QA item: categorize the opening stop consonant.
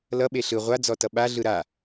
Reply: implosive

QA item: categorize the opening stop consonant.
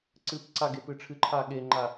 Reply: click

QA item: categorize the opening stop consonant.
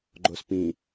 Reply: click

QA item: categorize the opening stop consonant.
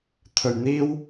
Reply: aspirated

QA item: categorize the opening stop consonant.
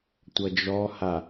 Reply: plain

